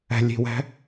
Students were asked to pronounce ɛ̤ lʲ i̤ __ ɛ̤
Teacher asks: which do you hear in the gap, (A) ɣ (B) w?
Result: B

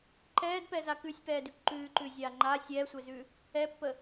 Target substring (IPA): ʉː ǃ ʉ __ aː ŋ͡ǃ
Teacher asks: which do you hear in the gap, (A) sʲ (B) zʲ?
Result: B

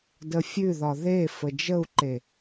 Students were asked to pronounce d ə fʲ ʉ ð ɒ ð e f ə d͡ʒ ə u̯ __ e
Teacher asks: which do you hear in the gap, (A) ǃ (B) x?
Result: A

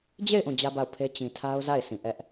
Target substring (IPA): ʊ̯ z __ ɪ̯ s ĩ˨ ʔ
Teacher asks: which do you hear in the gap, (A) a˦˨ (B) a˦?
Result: A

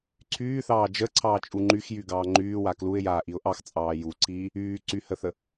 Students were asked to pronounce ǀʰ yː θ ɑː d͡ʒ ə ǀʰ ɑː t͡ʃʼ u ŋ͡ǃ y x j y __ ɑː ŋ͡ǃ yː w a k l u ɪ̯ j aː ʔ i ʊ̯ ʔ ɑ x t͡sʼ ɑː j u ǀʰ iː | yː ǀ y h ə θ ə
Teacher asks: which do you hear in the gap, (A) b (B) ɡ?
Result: B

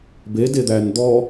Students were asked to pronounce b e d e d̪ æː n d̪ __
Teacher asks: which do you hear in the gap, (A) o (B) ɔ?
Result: B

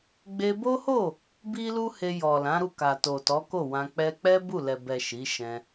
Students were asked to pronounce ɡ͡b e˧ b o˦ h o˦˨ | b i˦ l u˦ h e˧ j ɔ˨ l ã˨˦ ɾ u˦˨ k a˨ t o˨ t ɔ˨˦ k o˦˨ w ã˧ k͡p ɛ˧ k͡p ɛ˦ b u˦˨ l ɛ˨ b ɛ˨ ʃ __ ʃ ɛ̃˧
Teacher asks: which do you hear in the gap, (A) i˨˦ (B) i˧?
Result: A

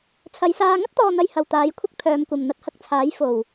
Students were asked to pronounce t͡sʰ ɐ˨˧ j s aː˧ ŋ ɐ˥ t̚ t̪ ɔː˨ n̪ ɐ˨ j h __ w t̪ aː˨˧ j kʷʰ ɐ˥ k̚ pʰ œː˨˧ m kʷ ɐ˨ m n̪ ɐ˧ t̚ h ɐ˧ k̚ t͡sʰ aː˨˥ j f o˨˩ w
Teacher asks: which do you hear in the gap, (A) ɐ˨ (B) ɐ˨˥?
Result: A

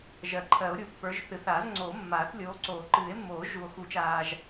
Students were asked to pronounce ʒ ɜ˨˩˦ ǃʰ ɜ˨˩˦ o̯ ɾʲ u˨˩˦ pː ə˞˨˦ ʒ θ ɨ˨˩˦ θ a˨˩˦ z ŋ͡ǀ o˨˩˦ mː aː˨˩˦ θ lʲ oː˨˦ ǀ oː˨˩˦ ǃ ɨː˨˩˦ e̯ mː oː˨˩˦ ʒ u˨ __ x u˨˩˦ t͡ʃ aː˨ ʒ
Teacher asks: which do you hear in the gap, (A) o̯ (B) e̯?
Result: A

